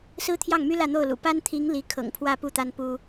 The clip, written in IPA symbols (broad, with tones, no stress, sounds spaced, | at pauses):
s ɹ̩˥ t̪ʰ j ɑ˥˩ ŋ m y˥ l ä˥˧ n̪ o˥˩ ʊ̯ l ṵ˨˩ p a˥ n t̪ʰ i˧˥ ŋ l i˧˥ kʰ ɤ̰˨˩ ŋ pʰ w ä˥˧ p u˥˩ t̪ a˥ n p u˥